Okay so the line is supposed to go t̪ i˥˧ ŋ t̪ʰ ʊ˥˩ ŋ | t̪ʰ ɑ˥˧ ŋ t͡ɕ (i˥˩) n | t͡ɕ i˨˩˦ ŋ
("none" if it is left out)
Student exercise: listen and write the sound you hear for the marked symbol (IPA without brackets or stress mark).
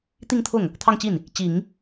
i˥˩